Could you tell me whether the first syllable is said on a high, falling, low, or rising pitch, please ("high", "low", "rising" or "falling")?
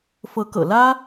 rising